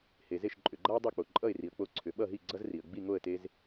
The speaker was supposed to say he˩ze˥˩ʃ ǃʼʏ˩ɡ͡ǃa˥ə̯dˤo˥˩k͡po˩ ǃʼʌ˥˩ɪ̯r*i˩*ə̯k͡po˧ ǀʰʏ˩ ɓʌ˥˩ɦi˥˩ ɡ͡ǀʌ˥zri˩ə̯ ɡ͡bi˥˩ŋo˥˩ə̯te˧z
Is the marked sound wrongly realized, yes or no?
no